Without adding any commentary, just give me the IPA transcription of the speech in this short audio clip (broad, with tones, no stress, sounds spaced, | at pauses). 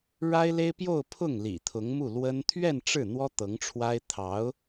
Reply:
ɻ a˥ ɪ̯ l e˥ ɪ̯ p j o˥˧ ʊ̯ pʰ ʊ˥˩ ŋ l ḭ˨˩ t̪ʰ ʊ˧˥ ŋ m u˥˩ l w ə˥ n t̪ʰ ɥ ɛ˥˧ n ʈ͡ʂ ɻ̩˥˩ n̪ w ɔ˥ t̪ ɤ˧˥ ŋ ʈ͡ʂʰ w a˥ ɪ̯ t̪ʰ ɑ˧˥ ʊ̯